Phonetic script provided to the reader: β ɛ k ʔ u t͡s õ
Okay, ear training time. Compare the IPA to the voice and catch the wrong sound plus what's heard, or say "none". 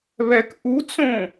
none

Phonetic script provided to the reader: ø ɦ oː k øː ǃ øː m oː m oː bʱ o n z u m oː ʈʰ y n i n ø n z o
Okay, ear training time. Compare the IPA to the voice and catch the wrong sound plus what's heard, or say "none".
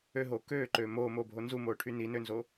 none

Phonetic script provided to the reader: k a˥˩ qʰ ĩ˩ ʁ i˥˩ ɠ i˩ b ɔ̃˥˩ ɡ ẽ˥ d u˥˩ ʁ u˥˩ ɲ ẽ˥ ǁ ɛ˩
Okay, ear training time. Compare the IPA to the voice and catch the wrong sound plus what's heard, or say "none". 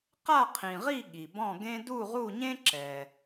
k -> q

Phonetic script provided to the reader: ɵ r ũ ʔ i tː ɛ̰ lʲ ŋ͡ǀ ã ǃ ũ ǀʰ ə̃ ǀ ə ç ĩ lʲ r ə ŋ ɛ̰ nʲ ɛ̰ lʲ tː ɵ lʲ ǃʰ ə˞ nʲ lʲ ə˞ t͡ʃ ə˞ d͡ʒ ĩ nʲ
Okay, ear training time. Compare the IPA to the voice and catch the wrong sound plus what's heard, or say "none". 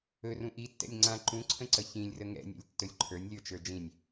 none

